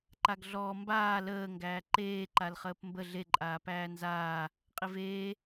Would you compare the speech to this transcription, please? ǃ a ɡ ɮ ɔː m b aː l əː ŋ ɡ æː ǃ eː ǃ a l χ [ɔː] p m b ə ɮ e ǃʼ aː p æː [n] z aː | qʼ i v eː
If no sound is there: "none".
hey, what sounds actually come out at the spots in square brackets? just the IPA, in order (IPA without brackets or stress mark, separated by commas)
əː, n